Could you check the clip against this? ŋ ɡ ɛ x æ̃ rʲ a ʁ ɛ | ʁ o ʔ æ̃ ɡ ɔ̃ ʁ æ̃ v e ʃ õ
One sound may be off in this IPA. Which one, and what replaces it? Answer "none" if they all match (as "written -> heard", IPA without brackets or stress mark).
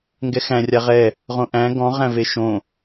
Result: o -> õ